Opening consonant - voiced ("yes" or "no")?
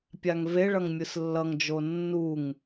no